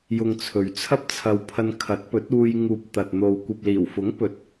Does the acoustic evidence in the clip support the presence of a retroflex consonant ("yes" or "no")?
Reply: no